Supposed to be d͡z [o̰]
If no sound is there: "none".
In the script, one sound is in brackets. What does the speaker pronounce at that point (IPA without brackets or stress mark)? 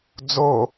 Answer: o